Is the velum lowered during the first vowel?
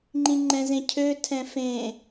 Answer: yes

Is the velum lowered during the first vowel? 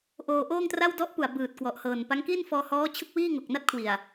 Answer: no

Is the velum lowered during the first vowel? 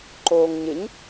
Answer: no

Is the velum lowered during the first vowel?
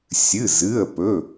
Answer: no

